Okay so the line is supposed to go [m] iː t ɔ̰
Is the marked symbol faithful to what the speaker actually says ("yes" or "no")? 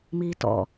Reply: yes